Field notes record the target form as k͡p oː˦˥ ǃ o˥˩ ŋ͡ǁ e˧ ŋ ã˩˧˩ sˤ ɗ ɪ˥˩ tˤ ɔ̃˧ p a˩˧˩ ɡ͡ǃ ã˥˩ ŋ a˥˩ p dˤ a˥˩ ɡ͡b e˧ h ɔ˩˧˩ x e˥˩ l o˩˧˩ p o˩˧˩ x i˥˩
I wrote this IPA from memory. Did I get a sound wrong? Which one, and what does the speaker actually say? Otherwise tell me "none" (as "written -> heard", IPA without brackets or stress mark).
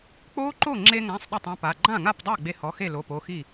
none